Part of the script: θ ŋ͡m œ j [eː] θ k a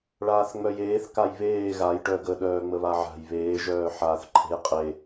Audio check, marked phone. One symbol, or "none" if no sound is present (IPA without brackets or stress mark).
eː